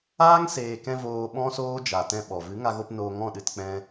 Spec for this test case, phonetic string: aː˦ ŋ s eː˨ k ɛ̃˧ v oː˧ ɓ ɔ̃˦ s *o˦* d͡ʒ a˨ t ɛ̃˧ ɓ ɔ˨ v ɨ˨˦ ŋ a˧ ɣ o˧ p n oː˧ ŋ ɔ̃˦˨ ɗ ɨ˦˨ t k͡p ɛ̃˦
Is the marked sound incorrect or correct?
incorrect